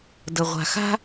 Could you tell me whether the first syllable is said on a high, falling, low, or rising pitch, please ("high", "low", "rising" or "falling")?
low